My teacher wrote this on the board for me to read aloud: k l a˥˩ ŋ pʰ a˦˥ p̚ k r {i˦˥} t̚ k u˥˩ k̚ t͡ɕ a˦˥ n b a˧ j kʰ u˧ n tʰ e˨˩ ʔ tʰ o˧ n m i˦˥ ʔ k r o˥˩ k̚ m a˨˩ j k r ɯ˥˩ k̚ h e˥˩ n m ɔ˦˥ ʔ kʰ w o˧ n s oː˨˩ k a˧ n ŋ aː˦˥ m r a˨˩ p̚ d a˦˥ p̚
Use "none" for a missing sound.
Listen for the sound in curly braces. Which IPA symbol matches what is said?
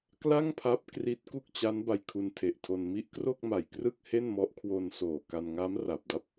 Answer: i˦˥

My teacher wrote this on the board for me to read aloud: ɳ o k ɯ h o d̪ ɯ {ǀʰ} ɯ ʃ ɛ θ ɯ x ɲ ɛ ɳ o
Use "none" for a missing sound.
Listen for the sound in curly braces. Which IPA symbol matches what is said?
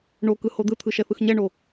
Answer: t̪ʰ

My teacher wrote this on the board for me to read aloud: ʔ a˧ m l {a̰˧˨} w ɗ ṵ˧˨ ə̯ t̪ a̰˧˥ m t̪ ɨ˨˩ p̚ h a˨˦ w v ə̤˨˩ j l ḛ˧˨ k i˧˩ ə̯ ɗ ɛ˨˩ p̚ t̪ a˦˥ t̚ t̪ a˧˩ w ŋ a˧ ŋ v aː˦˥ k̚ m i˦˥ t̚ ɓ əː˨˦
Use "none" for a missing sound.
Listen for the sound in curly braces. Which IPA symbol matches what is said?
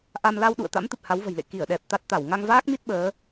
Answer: a˧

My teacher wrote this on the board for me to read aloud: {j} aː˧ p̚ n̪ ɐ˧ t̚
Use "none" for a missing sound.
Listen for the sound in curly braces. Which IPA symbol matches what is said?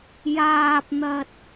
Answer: j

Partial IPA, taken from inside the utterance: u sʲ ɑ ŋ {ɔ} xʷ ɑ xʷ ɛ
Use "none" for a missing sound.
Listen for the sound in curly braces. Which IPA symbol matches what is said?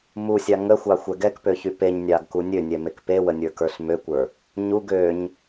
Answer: ə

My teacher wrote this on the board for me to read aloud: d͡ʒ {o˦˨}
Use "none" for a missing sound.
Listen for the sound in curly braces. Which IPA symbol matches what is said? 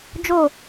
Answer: o˦˨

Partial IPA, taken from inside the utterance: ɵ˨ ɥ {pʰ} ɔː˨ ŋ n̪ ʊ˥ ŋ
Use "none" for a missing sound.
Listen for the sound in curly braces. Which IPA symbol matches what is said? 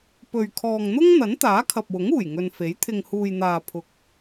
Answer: kʰ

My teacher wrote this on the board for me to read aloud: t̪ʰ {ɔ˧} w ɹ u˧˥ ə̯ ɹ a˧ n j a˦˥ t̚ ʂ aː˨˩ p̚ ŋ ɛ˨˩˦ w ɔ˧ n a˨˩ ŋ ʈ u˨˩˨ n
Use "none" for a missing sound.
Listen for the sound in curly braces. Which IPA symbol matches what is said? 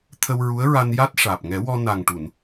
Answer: ə˧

